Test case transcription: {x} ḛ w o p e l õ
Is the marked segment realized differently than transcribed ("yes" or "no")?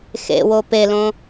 no